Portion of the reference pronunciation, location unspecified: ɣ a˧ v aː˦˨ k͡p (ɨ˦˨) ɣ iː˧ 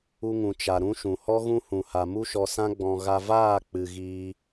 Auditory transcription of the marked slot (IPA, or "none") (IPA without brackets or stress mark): ɨ˨